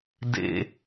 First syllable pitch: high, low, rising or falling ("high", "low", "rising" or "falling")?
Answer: high